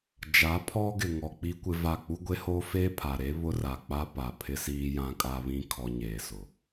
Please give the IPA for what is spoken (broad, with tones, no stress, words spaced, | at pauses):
d͡ʒa˨˦pʰɔ˦ ɡɪ˨ŋɔ˨ k͡pi˦kʷɪ˦va˦˨ k͡pu˦ɡʷe˦hoː˦ feː˦pʰa˨ɾe˦ βʊ˦ra˨k͡pa˦ pa˨pʰɪ˦siː˦ jã˦kʼa˦βĩ˦ kʰɔ˦ ɲeː˨sʊ˨